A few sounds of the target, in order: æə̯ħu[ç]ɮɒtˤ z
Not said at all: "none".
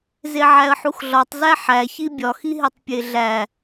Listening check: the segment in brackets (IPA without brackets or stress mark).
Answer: x